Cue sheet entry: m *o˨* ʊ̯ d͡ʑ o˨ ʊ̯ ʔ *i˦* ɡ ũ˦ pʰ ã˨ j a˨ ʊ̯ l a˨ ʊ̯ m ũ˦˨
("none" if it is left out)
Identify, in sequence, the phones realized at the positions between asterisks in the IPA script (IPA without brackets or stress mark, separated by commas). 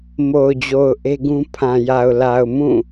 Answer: o˨, e˦